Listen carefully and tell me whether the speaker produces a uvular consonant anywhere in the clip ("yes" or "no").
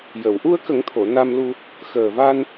no